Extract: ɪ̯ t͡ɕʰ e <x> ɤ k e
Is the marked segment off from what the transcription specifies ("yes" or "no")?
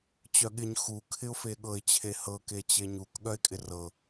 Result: yes